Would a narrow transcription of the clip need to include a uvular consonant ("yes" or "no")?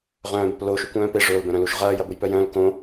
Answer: yes